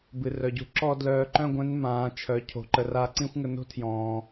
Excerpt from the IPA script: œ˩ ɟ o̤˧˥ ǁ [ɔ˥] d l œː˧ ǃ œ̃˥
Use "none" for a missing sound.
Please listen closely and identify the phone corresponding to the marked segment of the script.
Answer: ɔ˥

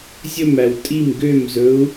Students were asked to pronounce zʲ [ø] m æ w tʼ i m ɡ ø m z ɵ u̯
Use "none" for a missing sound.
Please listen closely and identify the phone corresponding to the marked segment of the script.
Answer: ɵ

